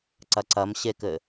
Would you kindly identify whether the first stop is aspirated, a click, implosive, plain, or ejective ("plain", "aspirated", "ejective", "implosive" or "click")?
click